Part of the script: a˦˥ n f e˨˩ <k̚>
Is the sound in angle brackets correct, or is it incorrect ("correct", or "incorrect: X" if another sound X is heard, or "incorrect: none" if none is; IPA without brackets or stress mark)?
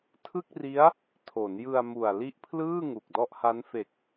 correct